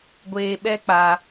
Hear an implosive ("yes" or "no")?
yes